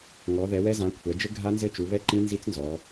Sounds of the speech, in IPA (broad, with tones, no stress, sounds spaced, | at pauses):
ŋ ɔ˩˧ ð ɛ˩˧ w ɛ˦˥ z ã˩˧ kʷʰ ɛ˩˧ d͡ʒ ɘ˦˥ ɡʱ a˦˥ n z ɘ˦˥ t͡ʃ u˩˧ β ɛ˦˥ ǃ ĩ˦˥ n z i˦˥ t͡s n z ɔ˩˧